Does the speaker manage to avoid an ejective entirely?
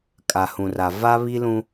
no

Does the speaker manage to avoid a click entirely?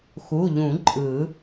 no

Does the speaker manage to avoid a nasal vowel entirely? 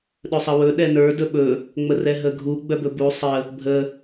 yes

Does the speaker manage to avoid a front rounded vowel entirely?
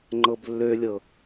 no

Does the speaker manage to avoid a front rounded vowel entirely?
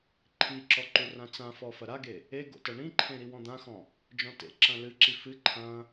yes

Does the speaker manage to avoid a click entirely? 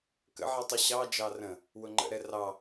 no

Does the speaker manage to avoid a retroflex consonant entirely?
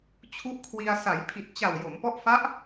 yes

